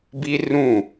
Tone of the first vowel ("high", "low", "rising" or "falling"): high